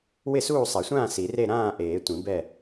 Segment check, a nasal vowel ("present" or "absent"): present